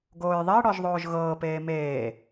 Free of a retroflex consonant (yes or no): no